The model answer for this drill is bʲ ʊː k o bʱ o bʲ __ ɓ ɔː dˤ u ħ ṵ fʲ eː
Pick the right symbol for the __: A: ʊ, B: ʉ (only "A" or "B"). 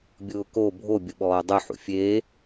A